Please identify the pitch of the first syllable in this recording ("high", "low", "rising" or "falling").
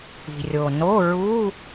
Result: low